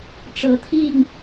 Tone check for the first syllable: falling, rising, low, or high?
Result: rising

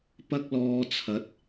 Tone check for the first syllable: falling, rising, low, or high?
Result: high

